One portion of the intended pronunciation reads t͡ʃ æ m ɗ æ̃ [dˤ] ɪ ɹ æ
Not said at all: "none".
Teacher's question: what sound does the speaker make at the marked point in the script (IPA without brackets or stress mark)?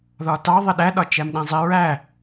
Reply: zˤ